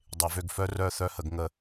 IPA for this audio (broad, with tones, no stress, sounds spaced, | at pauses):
dˤ e˨˩˦ v ø˦˨ ɡ f œ˦ r œ˦˨ θ œ˦ h ə˨˩˦ ɡ ŋ ə˦˨